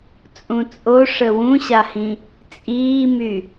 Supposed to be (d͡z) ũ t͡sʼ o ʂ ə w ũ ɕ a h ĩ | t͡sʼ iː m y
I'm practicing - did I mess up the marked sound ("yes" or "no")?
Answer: yes